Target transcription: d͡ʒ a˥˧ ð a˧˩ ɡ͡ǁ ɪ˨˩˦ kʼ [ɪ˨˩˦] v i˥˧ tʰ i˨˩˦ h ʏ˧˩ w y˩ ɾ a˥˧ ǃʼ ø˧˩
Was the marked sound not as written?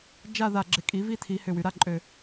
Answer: yes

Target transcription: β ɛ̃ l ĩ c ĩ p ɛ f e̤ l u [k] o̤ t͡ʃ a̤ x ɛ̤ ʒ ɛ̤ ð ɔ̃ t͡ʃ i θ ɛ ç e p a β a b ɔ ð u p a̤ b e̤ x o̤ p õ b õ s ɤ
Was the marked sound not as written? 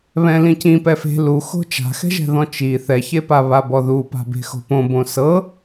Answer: yes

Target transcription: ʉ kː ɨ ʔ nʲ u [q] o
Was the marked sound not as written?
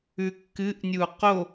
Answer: no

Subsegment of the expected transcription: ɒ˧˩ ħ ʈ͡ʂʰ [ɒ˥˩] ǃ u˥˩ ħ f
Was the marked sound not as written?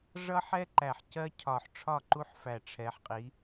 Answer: no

